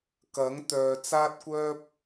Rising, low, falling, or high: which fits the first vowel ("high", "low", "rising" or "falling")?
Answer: rising